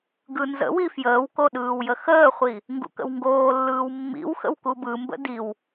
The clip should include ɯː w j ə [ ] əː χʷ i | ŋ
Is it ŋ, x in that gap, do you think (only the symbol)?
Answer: x